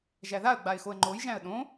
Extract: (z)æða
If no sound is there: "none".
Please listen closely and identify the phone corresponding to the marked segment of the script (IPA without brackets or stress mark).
ʒ